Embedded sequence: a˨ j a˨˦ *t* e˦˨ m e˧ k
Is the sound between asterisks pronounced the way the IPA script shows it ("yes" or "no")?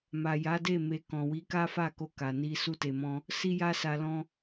no